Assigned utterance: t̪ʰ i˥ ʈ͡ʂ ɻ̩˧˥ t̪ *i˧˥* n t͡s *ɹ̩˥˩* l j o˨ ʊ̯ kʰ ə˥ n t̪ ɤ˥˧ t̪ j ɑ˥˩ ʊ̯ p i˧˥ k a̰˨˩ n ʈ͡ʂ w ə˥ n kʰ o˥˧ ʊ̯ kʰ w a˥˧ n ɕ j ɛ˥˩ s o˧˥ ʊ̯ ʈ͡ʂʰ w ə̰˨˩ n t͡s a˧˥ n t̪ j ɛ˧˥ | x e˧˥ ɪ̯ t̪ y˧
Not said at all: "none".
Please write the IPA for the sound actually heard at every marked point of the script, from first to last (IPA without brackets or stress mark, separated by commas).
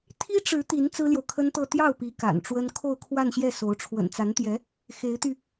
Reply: i˧˥, ɹ̩˥